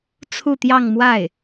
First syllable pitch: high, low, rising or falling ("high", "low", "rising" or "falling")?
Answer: falling